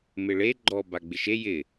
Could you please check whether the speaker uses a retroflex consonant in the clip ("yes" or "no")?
yes